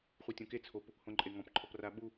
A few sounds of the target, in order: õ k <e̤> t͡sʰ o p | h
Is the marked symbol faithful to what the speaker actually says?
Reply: no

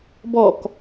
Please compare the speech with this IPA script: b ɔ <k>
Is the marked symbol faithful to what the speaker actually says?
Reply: yes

